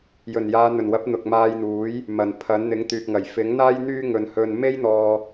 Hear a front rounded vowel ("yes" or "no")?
yes